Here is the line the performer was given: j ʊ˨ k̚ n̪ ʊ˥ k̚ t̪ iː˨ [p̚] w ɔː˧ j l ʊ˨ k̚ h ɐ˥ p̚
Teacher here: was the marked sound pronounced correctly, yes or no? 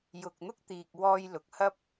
no